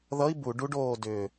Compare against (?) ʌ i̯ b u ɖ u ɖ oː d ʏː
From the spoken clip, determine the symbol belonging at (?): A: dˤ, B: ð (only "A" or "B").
B